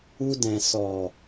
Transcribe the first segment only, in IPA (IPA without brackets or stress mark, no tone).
u